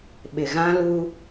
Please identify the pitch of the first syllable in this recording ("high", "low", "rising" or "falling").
low